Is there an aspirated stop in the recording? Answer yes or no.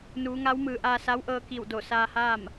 no